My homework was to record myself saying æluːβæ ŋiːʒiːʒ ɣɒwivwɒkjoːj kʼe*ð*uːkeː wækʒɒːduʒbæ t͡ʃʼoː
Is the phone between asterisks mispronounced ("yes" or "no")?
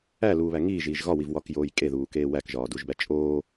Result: no